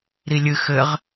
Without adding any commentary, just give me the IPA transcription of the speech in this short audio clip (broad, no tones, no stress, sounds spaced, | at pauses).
ɾ i lʲ ɨ x ɘ ʁ